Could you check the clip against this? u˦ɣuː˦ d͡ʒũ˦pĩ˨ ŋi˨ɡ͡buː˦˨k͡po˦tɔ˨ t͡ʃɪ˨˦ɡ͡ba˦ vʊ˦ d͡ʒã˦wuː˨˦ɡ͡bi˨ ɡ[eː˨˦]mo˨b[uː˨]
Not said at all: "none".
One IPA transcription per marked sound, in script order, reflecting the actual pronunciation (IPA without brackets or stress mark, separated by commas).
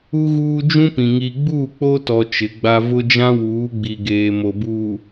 eː˨, uː˨